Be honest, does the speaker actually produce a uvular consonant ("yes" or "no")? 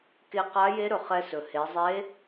yes